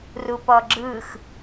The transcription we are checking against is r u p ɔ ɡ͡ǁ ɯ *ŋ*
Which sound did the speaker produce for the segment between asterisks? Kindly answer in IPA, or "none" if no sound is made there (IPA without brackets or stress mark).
x